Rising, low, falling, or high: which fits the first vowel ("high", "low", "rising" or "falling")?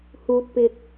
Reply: low